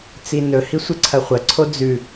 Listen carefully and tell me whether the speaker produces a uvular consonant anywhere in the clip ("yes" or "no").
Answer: yes